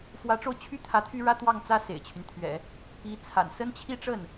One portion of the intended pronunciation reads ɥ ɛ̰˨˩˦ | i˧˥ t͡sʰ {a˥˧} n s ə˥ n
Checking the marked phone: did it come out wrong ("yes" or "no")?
yes